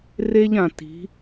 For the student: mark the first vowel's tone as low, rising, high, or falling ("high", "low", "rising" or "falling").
high